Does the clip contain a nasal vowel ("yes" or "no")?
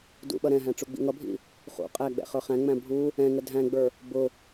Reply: yes